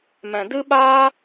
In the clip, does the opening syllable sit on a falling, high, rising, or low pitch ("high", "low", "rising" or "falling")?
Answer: low